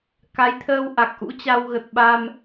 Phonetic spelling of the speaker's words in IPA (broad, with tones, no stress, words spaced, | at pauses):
ka˨˦jt̪ʰəː˧w ʔa˨˩k̚ʔṵ˧˥t͡ɕa˧w ɣə˨˩t̚ɓa˧m